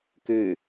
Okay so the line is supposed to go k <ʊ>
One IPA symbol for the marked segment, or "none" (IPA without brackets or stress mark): ʉ